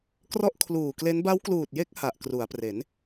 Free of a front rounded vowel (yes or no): yes